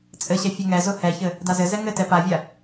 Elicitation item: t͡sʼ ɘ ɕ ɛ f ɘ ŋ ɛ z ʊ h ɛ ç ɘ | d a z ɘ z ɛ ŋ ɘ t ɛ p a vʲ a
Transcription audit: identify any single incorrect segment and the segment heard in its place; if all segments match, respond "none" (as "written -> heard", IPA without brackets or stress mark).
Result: f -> fʲ